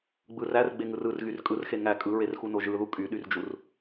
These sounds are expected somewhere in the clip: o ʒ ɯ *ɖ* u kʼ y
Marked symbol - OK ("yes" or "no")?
no